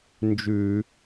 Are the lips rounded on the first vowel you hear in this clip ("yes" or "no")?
yes